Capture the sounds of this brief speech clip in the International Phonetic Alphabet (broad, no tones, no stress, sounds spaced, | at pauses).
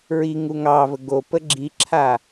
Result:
ɹ i ŋ u ŋ ɑ v ə ɡ o p ə ɡ͡ǁ i ǁʰ a